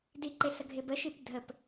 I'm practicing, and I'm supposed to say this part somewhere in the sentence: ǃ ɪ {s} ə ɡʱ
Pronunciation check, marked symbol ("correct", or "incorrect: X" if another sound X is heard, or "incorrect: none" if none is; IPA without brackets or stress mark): correct